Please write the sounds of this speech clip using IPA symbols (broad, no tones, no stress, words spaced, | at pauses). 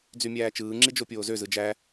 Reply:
d͡zymʲæːt͡ʃɯːŋ͡ǁi d͡ʒopʲoːzø zɯd͡ʒæ